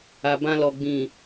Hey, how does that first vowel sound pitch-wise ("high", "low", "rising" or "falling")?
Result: low